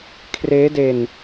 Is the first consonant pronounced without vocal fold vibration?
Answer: yes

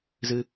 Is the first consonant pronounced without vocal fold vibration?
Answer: no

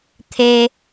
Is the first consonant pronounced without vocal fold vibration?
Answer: yes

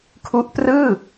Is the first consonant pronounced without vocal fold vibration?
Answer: yes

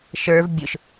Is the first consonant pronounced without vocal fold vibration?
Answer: yes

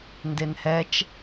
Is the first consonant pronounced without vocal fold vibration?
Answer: no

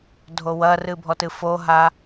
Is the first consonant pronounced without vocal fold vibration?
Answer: no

